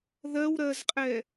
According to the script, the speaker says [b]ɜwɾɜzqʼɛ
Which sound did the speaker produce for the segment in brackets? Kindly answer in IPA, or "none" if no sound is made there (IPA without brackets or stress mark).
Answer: ð